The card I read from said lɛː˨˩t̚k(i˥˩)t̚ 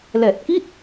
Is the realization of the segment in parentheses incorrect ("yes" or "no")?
no